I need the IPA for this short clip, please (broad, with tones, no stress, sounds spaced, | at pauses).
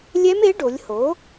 lʲ ɛ˦˥ m e˩˥ ɖ o˩˧ lʲ h o˩˥